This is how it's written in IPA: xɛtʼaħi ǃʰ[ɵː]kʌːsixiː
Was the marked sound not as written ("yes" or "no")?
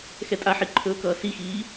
no